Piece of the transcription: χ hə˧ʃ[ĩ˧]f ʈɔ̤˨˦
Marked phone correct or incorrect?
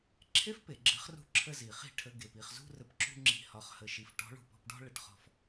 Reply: incorrect